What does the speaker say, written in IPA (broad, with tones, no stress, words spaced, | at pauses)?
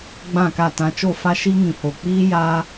ɡ͡bã˦˨ka˦˨tã˧ t͡ʃo˦˨fa˦ʃi˦ ŋĩ˨ho˨k͡piː˦ ja˧